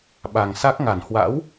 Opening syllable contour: low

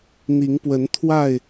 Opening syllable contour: rising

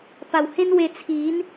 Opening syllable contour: low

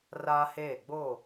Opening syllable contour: high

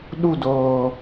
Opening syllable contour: falling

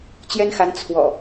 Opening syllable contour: high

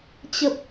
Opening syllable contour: low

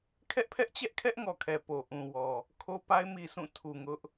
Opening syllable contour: high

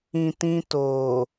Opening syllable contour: low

